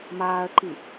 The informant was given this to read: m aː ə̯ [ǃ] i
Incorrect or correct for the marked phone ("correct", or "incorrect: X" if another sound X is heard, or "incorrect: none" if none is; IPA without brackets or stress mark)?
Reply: correct